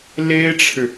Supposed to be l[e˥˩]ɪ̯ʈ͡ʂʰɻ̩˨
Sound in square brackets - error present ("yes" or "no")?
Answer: yes